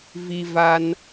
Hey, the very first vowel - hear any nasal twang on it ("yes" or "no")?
no